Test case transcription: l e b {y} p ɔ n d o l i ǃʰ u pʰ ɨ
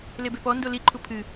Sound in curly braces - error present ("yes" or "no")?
yes